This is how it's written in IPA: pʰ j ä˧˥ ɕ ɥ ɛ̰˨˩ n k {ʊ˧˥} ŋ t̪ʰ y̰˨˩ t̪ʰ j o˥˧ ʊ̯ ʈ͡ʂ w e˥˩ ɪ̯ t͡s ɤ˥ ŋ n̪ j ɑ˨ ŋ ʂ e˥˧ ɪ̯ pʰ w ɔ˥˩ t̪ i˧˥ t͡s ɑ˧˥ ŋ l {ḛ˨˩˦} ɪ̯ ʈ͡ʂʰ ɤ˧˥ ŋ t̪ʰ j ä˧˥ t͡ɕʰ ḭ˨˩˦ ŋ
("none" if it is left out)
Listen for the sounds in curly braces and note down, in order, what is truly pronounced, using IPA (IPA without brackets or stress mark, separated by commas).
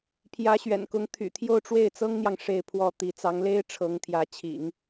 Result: ʊ˧˥, e˥